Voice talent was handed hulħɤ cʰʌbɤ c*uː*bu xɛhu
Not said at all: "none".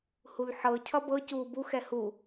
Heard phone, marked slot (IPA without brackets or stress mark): uː